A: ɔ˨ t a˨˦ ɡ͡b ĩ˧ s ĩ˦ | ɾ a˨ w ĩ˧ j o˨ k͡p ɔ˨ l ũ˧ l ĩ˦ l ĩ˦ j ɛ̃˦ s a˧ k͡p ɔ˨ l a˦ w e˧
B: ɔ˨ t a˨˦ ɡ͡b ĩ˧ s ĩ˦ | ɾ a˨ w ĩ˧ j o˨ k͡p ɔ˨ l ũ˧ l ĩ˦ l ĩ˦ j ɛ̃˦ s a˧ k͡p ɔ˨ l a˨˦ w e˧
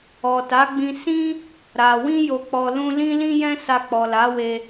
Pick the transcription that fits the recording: B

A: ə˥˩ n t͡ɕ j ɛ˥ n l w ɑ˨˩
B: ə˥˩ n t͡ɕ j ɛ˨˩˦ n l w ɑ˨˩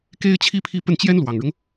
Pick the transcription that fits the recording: A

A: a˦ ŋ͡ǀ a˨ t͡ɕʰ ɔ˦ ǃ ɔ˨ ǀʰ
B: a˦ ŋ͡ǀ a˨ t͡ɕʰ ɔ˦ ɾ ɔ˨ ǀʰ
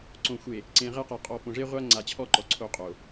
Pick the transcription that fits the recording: A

